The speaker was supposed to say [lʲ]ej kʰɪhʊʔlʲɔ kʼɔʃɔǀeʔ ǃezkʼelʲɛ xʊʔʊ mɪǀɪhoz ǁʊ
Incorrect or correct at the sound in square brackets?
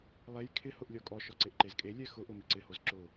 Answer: incorrect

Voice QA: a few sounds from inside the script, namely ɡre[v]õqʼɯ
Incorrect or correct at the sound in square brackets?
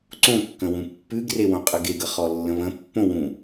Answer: incorrect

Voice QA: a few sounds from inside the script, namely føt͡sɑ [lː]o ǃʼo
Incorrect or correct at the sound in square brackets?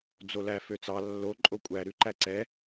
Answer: correct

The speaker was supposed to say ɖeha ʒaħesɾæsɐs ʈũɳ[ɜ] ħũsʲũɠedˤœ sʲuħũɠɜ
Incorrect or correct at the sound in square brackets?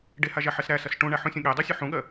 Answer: incorrect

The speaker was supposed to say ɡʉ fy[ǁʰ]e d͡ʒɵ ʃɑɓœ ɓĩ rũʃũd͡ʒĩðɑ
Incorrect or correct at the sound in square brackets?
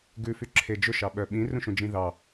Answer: correct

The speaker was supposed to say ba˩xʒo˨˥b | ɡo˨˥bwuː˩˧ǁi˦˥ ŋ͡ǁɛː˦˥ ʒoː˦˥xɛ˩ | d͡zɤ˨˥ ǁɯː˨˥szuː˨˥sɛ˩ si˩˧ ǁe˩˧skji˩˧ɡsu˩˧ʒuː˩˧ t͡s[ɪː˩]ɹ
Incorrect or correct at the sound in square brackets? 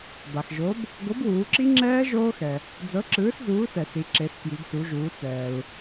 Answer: incorrect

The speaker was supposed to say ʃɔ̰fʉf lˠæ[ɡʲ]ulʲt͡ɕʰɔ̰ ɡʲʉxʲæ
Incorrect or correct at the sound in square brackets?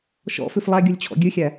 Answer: correct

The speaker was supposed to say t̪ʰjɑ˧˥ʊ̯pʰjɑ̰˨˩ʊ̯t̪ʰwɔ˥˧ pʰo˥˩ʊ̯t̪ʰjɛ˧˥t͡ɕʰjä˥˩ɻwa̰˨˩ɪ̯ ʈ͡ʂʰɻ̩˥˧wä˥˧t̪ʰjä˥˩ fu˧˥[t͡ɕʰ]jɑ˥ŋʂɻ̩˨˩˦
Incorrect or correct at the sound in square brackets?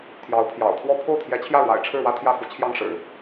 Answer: correct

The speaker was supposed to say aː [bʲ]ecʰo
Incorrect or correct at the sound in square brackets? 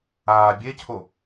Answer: correct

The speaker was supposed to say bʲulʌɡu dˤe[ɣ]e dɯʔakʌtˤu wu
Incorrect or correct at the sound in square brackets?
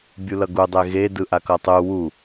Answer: correct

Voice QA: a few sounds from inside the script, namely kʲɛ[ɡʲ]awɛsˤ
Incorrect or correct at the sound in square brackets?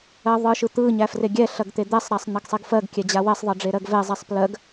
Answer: incorrect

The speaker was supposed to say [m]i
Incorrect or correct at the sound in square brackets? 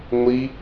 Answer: incorrect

